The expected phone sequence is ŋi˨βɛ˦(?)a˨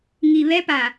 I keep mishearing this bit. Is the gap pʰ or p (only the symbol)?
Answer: p